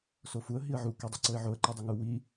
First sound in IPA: s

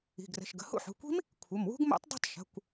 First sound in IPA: i̤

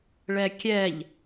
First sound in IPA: ɭ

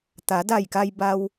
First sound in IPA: t̪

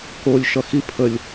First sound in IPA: k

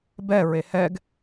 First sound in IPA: b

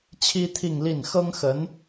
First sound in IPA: t͡ɕʰ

